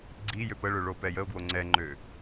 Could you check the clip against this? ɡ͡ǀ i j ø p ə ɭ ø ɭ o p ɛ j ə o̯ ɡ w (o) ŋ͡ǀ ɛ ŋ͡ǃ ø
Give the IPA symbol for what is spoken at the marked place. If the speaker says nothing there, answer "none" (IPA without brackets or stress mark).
o